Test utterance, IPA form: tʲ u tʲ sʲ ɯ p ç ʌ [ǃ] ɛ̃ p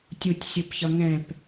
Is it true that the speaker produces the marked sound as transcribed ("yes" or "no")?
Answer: no